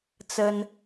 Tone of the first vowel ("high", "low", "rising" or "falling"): high